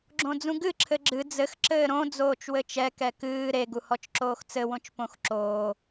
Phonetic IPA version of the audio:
ɡ͡ǁõd͡zũɡɨ ǁʰɘɡ͡ǁɨ d͡zɘx ǁɘːɾõ d͡zoːt͡ʃwɘt͡ʃɛ kɛkɨː ɾe ɡuhɔt͡ʃǁoːxt͡sɘ wõt͡ʃpõxǁoː

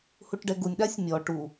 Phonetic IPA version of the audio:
huʈɖɛɡunʲ ɗasʲmʲɔ ʈu

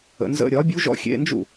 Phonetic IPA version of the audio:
ə̰˩˧nzə̰˧˥˧ ɾʲɒ˩˥bʲu˧˥ʒɔ̰˧˥ xʲḛ˧˥˧ nd͡ʒṵ˥˩

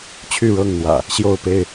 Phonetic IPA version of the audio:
t͡ɕʰy˥˨ɻɤ˥˨ŋn̪wä̰˨˩ | ɕjo˥˨ʊ̯pe˥˨ɪ̯

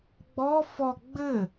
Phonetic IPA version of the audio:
ɡ͡bɔ fɔ ɡ͡bɘ

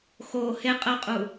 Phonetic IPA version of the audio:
xo he qʼəqʼu

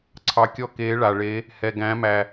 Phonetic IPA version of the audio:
ǀʰɑ˩ kʲɔ˧keː˩˧ɭa˩ɭe˩˧ | hɛ˩ɡæ̃˩˧mæ˩

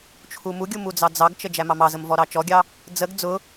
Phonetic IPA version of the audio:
t͡ʃʰumuɡʲu mud͡zɑd͡zɑɡt͡ʃə d͡ʒæmɑmɑzəm vɔɾɑt͡ʃɔɡʲɑ | d͡zəɡ d͡zʊ

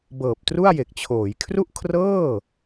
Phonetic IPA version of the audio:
bɤː˨˩p̚tru˥˩a̯je˨˩k̚t͡ɕʰoː˩˦j kʰru˥˩ʔkʰrɤː˥˩

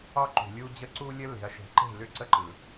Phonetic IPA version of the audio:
ɒ˦ǃṳ˨lʲu˦ d͡ʑə˦ǀu˦lʲə˦ le̤˨ɐ̯ʃe̤˨˦ǃe̤˦˨lʏ˦ ǀə˦ǃɯ˨

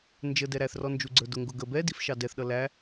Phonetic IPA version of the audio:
nd͡ʒə dɛɾæθrɔ nd͡ʒuɡ͡ǀə˞dʊŋɡʊ ɡə bɛdif ʃɑdɛθɗʌ læ

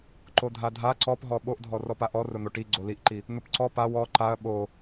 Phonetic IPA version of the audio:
ǃodʱadʱa ǀɔpɦɔ ɓoʔdʱɔ rɔpaʔɔ rʊn̪oʈi ɡ͡ǀoliʔǃi | n̪ʊpǀɔ paw ɔ ǃaɐ̯ ɓo

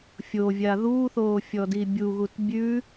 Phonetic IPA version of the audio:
fʲovʲa ðuːθoːfʲɔdi bʲuɣut bʲʉ

